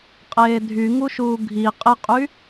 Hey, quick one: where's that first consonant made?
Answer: uvula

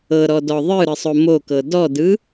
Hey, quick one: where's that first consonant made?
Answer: tongue tip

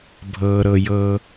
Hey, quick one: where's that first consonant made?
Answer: lips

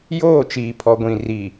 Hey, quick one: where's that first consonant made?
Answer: palate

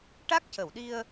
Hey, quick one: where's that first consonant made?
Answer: retroflex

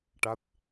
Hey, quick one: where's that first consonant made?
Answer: retroflex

